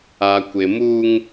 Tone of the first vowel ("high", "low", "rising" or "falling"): low